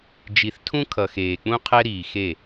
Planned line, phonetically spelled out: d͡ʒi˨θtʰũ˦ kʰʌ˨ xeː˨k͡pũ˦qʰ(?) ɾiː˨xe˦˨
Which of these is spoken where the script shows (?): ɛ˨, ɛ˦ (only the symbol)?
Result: ɛ˦